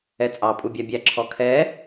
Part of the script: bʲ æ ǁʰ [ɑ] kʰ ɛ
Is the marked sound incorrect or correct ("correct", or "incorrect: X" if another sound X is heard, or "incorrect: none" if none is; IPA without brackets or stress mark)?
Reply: incorrect: ɔ